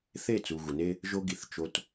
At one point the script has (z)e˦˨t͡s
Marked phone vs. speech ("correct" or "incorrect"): incorrect